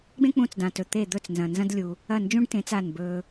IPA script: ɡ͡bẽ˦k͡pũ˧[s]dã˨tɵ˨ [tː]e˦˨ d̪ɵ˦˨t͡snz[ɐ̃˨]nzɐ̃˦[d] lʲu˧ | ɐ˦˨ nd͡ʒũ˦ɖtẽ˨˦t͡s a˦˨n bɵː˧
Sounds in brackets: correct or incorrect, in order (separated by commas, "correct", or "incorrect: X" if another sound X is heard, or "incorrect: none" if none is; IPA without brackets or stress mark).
incorrect: t͡s, incorrect: t̪, correct, correct